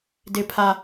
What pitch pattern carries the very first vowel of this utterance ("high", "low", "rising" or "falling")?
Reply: high